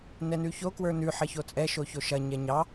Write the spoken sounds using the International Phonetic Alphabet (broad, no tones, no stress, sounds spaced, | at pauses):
n ɛ n ʉ ç o k w ə˞ n ʉ ħ ɐ ç o t͡sʼ ɛ ʃ o ç o ʃ ɐ ɲ ɛ ɲ ɑ